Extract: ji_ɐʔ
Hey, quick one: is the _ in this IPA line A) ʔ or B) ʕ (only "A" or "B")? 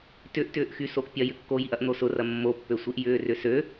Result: A